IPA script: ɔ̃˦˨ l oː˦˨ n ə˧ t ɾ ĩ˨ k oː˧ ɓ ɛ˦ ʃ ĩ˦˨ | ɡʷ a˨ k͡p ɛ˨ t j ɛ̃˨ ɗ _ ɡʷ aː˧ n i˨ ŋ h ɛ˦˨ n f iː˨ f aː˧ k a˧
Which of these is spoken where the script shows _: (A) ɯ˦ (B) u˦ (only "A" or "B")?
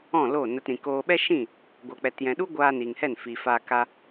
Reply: B